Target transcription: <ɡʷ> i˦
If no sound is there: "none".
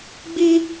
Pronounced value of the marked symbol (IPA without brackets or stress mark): ɡ͡b